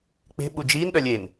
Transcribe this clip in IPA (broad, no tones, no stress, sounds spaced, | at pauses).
k͡p e̤ ɓ u d͡ʒ iː n ɗ œ lʲ e n